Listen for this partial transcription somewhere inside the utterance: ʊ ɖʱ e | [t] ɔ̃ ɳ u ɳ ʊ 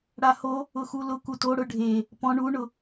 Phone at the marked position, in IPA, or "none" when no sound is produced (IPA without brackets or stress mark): p